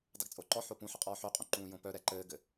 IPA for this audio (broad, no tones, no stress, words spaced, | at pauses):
dˤɘɡt͡sʼoǃɔħo pũħʌ qʼɔːħøqʼõ ǃũːjõpœɾɛ ǃɘːɡɘ